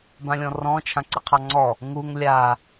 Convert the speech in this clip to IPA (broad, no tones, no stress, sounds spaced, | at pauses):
b ã lʲ ɔ̃ r ɔ̃ t͡ʃʰ ã ǀ i qʰ ɑ ŋ͡ǀ ɔ | ŋ u ŋ lʲ a